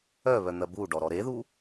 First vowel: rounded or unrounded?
rounded